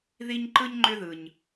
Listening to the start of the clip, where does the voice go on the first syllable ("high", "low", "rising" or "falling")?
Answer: high